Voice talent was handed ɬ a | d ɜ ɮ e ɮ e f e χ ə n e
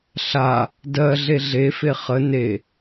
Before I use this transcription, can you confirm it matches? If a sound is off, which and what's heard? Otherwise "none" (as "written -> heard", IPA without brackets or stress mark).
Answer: none